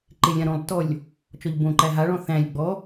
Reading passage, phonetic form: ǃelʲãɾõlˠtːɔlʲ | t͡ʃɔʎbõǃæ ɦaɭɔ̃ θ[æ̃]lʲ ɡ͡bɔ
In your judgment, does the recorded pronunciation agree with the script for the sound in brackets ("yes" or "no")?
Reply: yes